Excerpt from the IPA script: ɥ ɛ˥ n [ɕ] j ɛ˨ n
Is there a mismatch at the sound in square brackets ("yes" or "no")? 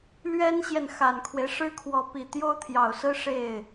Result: no